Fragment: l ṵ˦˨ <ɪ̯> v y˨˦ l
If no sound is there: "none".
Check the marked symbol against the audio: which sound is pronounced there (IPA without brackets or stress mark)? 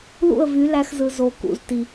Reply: ə̯